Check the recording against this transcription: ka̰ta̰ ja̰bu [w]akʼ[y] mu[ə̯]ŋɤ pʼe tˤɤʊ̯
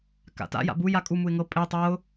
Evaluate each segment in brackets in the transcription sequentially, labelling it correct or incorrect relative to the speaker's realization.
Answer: incorrect: j, incorrect: u, incorrect: ɪ̯

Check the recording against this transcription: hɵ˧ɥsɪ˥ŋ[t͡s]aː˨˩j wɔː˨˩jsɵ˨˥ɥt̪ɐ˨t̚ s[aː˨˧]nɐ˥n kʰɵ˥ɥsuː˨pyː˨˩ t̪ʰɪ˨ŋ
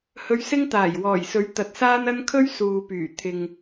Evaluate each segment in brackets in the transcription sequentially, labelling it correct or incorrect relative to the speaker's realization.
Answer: incorrect: t̪, incorrect: aː˥

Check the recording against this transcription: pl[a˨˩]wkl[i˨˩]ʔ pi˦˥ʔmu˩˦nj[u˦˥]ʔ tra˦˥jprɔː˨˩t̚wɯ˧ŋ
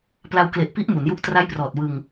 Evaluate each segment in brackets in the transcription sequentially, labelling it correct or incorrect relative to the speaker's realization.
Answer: incorrect: a˧, incorrect: e˨˩, correct

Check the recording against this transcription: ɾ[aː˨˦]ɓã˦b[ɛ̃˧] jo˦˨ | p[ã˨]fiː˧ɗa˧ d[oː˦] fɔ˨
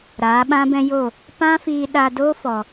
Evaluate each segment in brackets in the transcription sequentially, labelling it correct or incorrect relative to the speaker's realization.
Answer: correct, incorrect: ɛ̃˦, incorrect: ã˦, correct

